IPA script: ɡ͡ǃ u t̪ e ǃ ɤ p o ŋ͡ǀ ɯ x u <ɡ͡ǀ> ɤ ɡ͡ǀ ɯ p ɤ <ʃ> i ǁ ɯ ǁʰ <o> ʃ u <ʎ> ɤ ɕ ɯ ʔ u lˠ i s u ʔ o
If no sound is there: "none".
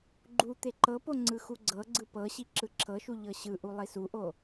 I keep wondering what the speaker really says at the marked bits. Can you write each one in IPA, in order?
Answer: ɡ͡ǀ, ɕ, ɤ, ʎ

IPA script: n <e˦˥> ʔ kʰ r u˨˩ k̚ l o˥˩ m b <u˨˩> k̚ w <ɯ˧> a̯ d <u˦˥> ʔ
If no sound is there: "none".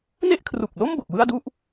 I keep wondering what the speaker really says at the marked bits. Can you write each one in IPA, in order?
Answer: e˥˩, o˨˩, ɯ˥˩, u˥˩

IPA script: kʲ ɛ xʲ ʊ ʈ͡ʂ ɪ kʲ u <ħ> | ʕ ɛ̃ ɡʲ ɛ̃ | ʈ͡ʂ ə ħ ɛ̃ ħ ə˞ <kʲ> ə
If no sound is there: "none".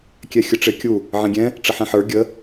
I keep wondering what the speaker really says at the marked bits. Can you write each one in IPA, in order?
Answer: none, ɡʲ

